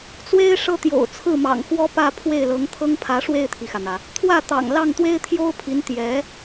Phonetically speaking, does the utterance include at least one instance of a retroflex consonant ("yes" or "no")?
yes